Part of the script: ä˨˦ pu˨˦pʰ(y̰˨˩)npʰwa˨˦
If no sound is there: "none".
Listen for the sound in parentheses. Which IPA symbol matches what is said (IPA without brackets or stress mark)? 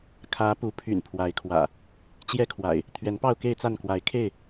y̰˨˩